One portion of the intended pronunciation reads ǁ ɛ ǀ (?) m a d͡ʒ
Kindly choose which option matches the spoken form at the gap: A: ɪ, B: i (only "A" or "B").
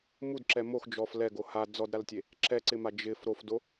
A